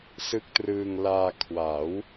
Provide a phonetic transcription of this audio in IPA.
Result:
s ɯ˦˥ k̚ t r ɯː˧ ŋ l aː˧ kʰ w a˩˦ w

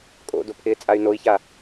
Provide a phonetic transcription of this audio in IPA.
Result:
kʼ o̰ d o pʰ ɪː t͡sʼ a y̯ n o i̯ ç a

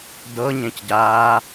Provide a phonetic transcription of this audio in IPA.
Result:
d ɤ ɲ ẽ c ɟ aː

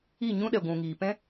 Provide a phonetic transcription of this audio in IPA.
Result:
i˦˨ ɲ ũ˦ ɗ ɛ˨ ɡʷ ũ˨ ŋ iː˨ p ɛ̃˦

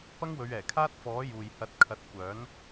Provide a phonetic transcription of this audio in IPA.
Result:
p ɐ˥ ŋ w ɵ˨˧ ɥ ɛː˨˩ kʰ aː˥ t̚ f ɔː˨˥ j uː˨ j h ɐ˨˥ t̚ kʰ ɐ˨˥ t̚ kʷ œː˨˥ n

